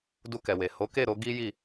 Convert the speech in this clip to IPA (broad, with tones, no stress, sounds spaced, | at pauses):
d u˧ k ɛ˨ w e˨ h o˨˦ k e˦˨ ɾ o˧ ɡ i˦ j i˦˨